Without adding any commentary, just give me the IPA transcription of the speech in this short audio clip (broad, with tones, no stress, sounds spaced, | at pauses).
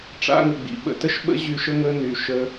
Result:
ʈ͡ʂ a̰˦ ŋ ə˨ ɡ͡b ḭ˨ ɓ ə̰˧ t ə˦ ʃ ɓ ə̰˦ ʑ y˧ ʃ ə˦ ŋ ə˦ n y˨ ʃ ə˦